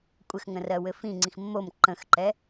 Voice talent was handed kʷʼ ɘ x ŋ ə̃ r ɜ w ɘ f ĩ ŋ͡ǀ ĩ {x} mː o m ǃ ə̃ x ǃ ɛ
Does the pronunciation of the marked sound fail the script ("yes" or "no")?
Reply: no